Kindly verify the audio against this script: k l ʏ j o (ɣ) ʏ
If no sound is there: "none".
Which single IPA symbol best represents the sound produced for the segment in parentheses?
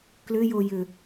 j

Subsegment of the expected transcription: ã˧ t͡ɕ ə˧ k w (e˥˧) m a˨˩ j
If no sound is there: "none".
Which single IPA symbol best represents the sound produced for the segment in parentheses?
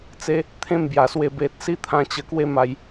e˥˧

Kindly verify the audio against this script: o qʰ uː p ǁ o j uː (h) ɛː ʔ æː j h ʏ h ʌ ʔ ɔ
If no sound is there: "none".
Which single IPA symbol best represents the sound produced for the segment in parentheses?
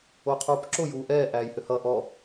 ʔ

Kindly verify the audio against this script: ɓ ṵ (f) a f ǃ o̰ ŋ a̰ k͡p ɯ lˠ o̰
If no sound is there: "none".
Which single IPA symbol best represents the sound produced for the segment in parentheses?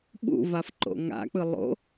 v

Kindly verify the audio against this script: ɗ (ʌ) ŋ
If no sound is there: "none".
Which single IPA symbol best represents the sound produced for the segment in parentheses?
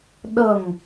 ʌ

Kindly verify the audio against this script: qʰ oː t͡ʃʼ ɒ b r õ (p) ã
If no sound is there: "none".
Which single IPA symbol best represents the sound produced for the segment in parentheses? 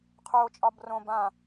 b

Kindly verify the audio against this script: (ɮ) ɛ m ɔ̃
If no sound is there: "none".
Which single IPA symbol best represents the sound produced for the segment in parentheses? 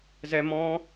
z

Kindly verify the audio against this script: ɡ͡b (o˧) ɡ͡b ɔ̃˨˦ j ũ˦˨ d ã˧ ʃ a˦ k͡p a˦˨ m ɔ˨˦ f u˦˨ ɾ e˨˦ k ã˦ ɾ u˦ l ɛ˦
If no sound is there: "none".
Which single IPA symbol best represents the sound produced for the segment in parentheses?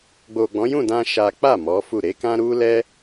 o˨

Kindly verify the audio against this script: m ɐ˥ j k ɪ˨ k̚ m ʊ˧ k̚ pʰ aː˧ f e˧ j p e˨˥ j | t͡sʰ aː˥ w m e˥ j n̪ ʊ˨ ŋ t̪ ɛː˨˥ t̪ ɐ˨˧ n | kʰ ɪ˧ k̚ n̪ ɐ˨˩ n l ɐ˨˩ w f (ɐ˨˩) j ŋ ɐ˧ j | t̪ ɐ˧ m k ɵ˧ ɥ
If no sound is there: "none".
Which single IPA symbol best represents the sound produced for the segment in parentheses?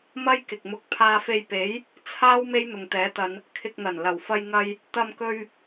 ɐ˧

